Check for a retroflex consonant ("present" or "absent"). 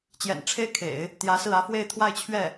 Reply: present